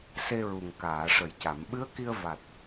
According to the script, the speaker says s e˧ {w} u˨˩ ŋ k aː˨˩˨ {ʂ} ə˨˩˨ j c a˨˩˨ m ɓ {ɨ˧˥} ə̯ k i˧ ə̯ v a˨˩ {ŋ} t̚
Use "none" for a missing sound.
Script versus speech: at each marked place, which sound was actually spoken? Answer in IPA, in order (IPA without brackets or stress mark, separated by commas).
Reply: ɹ, ʂ, ɨ˧˥, none